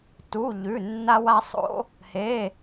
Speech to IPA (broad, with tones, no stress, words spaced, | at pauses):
tu˧˥˧ʎʉ˧˥˧ nːa˥wa˥sˤo̰˥ | he˧˥˧